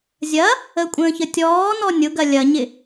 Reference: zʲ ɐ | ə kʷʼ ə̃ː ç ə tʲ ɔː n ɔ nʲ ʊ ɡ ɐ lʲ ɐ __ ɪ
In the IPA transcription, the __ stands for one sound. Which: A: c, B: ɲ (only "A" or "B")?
B